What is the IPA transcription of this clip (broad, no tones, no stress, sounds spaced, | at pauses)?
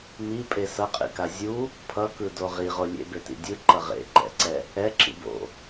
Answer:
m i pʼ e s ʌ qʼ ḭ k a zʲ u | pʰ ʌ k ɯ d o ʁ i ʁ o lʲ ḛ b e t ḭ dʲ ɯ ǃ ʌ ʁ ḛ ǃ ɛ̰ ǀ ɛ | ɛ ǁ ḭ b o̰